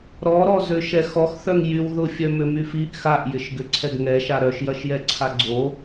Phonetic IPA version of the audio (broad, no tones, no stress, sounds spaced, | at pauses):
ɾ ɔ ɾ ɔ z ø ʃ ɛ x ɔ x θ œ ŋ j y w ð ʊ fʲ œ m ʏ m y f i ʔ x a ʔ j ɪ ʃ ɡ ʏ ǀʰ ɛ ɡ ŋ ɛ ʃ a ɾ œ ʃ j ɐ ʃ j ɛ ǀʰ a ɡ͡ǀ o